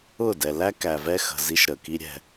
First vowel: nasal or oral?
oral